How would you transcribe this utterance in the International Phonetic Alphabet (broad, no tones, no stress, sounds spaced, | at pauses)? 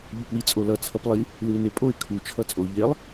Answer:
ʎ u p w i t͡sʼ o l ʌ t͡sʰ ʌ p lˠ i | l ɯ ɪ̯ n e pʼ o ɪ̯ kʰ u t͡ʃʰ ʌ t͡sʼ o ʎ e lˠ